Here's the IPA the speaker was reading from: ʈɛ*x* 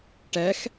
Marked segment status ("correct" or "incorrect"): correct